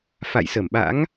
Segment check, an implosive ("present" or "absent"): present